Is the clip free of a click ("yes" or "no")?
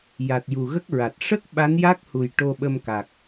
yes